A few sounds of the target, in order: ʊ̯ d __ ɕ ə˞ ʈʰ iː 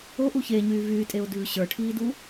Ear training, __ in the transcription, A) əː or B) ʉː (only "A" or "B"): B